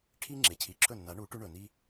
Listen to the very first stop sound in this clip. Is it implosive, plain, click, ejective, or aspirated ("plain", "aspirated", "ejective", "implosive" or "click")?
aspirated